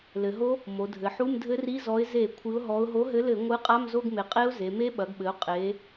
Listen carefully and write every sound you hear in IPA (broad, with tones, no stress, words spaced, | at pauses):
lɘ˩˧ɦo˦˥ | mo˩˧dʱɘ˩˧ħu˧˥˧m dʱɘ˦˥ri˧˥˧zɔ˨˥ɪ̯ ze˧˩˧ kʷʰɨ˨˥ʊ̯ɦɔ˨˥ʊ̯ ɦo˨˥ɦɘ˨˥lɘ˧˩˧ ŋʷɨ˨˥ qʼa˧˥˧mzo˧˥˧ɡme˩˧ qʼe˦˥ʊ̯ ze˩˧me˦˥ ɓɐ˩˧ɡɓɘ˩˧ʊ̯ qʼe˩˧